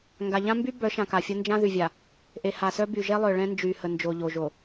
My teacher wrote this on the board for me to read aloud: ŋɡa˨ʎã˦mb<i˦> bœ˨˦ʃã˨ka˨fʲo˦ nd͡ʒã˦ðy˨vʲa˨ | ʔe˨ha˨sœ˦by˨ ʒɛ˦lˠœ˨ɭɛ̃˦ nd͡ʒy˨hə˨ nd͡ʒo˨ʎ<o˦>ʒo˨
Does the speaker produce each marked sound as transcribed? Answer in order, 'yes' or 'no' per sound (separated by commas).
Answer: no, no